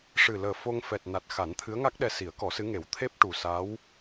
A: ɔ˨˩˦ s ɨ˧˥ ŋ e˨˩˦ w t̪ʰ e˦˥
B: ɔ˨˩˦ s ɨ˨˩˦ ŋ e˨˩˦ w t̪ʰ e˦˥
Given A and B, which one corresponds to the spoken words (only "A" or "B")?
A